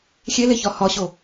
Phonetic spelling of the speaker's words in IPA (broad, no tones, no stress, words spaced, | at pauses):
xʲeleçɒ hɒɕo